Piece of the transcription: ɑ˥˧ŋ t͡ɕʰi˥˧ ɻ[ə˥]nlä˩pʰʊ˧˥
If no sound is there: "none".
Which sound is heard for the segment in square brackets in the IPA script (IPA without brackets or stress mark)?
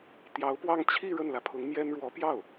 ə˥˩